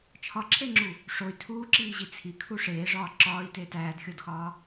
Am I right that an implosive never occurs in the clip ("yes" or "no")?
yes